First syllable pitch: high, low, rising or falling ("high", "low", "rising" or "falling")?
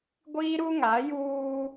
high